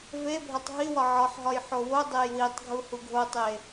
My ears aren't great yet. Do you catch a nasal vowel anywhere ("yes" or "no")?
no